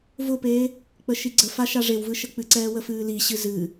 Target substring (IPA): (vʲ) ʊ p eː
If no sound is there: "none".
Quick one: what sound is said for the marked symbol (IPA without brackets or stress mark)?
v